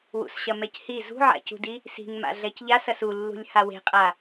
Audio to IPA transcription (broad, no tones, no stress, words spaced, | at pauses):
wṵsɕɐmɛchi zṳʕa̰cṳdi | si̤ŋma̰ ɮɛcʎas ɐsulːṳlʲ hawe̤qʼa